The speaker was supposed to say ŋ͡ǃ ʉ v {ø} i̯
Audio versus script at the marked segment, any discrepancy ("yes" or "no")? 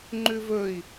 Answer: yes